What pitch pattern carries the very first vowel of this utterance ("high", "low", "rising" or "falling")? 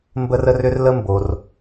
high